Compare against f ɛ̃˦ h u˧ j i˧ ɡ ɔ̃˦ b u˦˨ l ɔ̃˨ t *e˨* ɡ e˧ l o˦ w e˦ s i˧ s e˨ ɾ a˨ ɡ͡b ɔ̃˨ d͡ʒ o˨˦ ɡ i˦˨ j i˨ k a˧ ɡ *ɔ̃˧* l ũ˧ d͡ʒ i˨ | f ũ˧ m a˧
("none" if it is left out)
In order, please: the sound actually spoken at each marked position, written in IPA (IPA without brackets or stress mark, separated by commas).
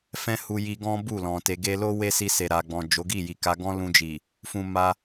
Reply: e˨, ɔ̃˦